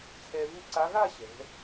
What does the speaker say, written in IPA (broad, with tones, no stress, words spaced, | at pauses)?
t͡sʰɛ˧vu˥˧ǀa˧˥ ɣa˥˧ ɕɛ̤˩˧